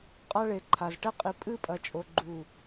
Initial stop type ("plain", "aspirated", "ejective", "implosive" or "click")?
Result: ejective